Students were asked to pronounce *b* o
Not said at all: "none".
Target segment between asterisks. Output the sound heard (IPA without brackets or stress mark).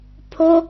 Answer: pʰ